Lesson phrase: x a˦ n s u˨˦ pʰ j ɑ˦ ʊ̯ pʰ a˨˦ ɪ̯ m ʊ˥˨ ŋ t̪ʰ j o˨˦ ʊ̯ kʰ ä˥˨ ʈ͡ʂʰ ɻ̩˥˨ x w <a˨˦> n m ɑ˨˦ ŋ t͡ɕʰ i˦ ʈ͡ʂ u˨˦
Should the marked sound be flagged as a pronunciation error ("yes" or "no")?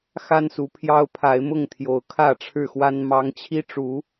yes